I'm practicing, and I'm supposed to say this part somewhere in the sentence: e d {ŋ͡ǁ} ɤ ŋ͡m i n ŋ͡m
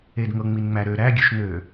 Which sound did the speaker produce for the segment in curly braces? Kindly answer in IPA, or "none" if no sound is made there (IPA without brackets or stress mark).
ŋ